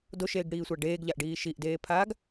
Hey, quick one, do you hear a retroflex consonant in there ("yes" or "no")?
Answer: yes